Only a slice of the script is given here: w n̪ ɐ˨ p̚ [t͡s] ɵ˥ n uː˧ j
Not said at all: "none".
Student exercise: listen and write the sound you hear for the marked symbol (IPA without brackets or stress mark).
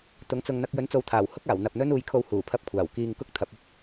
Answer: n̪